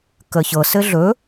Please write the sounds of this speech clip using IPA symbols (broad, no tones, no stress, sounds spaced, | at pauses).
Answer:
k ə ç ɤ s ɘ ɮ ɵ